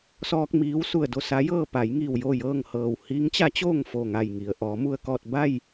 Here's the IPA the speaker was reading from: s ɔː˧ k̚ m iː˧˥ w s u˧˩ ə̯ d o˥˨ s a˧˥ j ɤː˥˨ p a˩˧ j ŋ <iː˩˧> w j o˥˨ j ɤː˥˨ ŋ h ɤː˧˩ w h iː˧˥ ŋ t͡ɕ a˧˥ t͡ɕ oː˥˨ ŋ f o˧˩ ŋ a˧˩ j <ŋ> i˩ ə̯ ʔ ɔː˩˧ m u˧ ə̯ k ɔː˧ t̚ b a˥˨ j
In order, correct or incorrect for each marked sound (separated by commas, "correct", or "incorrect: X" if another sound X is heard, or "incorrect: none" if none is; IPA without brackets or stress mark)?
incorrect: iː˧˩, correct